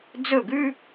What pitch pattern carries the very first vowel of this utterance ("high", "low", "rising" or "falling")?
falling